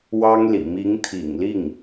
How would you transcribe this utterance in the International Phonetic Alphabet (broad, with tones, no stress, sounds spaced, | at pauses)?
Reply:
w ɑ˥ ŋ l ḭ˨˩ m i˧˥ ŋ t̪ʰ ḭ˨˩ ŋ l i˥˩ ŋ